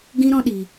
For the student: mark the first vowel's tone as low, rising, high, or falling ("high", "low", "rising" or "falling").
high